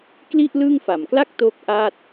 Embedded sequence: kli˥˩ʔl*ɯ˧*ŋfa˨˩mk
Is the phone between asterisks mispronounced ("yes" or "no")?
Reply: yes